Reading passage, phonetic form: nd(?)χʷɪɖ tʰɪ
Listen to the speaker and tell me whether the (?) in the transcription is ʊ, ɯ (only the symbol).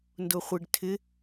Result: ʊ